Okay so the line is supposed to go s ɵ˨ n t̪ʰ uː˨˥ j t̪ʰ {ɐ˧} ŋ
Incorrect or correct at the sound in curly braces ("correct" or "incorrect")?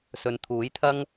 incorrect